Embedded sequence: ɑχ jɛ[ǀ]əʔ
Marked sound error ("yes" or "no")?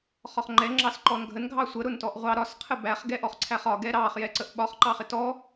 no